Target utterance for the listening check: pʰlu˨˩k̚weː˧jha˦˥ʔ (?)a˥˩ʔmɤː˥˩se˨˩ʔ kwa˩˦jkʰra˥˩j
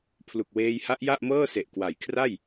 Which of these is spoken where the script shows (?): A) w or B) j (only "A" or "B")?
B